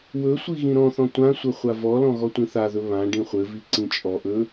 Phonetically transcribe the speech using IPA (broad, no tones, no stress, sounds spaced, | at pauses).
w ɵ sʷ i ɣ ĩ ɾ ɔ̃ θ ɔ̃ tʷ ã sʷ ɘ χʷ a v ɔ l ɔ̃ ɣ ɔ tʷ ĩ θ a ð ɵ β ã ɖ ĩ χʷ ɘ v i ǀ ĩ t͡ʃʼ ɔ ʔ ɵ